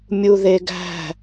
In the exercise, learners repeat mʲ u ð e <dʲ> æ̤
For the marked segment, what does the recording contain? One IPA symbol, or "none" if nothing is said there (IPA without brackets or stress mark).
ɡ